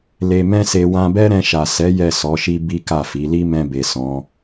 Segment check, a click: absent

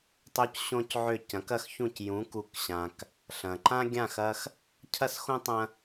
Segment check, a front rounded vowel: present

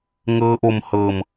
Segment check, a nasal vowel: absent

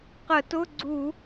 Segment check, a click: present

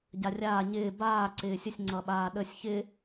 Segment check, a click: present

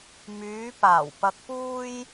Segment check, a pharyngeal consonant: absent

